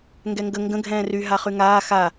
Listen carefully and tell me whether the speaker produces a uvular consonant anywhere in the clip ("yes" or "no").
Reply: yes